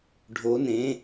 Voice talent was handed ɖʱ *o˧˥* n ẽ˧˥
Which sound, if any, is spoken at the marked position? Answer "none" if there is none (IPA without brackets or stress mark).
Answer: o˧˥